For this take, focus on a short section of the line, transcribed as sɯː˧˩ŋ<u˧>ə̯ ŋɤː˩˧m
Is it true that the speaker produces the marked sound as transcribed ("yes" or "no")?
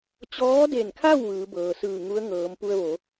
no